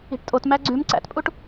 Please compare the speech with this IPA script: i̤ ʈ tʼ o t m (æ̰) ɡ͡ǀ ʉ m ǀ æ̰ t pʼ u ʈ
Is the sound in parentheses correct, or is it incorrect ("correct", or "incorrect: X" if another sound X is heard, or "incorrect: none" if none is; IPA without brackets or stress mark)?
incorrect: æ